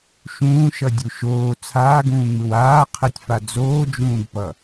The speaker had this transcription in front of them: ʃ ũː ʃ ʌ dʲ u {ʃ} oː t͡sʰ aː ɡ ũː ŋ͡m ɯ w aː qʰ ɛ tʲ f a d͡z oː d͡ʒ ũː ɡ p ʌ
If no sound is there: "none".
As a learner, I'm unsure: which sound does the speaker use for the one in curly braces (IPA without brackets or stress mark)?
ʃ